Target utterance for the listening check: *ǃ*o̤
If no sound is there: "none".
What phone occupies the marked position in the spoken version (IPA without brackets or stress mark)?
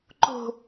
ǃ